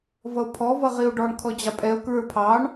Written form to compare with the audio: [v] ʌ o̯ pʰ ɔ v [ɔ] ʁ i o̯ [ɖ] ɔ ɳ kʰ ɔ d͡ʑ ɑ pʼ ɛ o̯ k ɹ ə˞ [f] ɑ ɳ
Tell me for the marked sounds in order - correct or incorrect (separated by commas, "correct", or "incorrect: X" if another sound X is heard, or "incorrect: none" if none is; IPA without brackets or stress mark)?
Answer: correct, incorrect: ʌ, correct, incorrect: pʰ